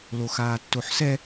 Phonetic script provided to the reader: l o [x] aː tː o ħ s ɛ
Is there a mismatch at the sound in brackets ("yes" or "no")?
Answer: no